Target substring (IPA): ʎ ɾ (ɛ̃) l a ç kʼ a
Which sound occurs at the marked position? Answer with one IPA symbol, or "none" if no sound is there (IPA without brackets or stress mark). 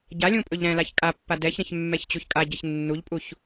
ɛ̃